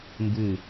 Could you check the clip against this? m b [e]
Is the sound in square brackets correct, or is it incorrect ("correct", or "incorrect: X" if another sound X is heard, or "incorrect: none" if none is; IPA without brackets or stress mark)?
incorrect: ɨ